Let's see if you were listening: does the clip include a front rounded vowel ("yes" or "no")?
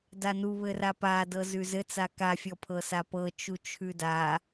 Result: no